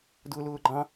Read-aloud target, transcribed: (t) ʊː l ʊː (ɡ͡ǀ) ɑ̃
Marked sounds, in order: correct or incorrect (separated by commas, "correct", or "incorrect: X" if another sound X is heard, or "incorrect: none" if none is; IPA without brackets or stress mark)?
incorrect: d, incorrect: ɡ͡ǃ